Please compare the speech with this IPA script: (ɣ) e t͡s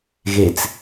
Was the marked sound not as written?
no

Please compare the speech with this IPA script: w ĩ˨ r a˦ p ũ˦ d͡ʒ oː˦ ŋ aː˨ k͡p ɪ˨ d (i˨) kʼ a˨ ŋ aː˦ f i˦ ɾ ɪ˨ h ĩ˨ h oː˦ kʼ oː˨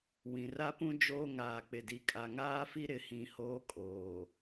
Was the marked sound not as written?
no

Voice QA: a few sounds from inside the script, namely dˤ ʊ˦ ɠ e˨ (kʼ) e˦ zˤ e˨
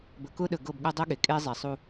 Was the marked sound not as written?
no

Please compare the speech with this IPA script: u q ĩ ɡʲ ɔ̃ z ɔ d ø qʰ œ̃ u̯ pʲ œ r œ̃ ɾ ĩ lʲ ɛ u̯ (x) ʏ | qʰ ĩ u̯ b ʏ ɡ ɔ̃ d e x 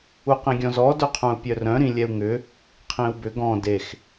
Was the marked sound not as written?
yes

